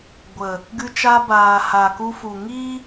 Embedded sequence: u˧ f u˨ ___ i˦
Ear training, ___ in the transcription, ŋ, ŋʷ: ŋ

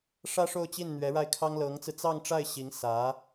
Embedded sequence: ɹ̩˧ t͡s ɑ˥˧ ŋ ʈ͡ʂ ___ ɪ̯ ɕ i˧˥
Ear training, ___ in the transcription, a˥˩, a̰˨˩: a˥˩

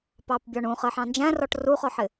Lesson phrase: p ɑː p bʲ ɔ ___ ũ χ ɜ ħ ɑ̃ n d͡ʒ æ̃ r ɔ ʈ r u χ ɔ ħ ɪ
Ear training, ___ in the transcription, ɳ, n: ɳ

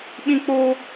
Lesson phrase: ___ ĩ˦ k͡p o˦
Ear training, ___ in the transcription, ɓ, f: ɓ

